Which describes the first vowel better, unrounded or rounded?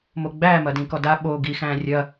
rounded